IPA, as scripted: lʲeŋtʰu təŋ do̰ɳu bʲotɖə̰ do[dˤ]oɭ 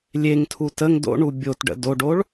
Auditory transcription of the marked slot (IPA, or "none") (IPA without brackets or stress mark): ɖ